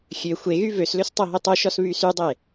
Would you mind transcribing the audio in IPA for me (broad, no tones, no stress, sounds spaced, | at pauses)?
xʲ ø xʷ e ɣ y v ø s l ø s tˤ o ɦ e tˤ o ʃ ɔ s β y s y dˤ e